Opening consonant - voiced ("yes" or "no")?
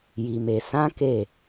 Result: yes